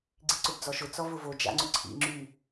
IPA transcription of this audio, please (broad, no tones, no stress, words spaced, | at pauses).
ɡ͡ǀiǀʊbd͡zɔʃʊ t͡sɔvʊvo d͡ʒa̰ŋ͡ǀʊǀʰḭ ŋ͡ǁy